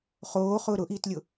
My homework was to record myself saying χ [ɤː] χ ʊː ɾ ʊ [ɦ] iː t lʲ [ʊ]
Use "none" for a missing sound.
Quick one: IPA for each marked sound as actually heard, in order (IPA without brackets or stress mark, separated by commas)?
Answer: oː, ʔ, ʊ